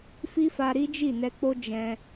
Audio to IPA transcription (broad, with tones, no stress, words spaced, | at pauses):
fi˦fa˧ɾi˦d͡ʒi˦˨ nɛ˧k͡po˦ d͡ʒɛ̃˧